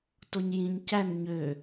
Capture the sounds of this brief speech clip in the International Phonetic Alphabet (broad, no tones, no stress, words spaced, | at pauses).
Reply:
toɲjĩɲ cæn ɲø